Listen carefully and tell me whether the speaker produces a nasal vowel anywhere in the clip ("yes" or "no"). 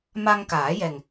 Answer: no